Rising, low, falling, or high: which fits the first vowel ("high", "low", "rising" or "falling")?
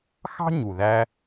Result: high